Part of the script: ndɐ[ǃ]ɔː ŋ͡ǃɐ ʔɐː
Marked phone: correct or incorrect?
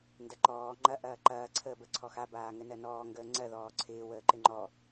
correct